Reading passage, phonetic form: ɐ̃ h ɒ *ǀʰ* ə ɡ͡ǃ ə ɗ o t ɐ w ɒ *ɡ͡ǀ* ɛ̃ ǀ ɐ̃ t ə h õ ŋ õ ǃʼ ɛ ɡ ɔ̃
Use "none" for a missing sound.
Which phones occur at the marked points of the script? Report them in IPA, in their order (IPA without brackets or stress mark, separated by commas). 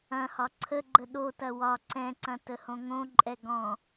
ǀʰ, ǀ